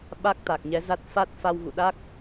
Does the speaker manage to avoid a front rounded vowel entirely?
yes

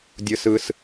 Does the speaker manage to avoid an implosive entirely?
yes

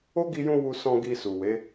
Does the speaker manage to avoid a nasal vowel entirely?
no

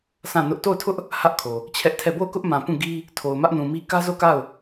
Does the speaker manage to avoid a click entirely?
yes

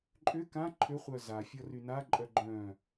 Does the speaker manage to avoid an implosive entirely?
yes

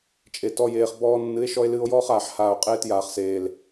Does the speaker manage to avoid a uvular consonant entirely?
no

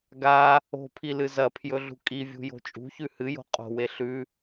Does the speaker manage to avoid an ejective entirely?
no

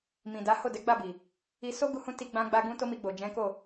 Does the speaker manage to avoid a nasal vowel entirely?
no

